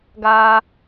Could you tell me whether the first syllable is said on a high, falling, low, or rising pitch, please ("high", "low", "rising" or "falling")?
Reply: high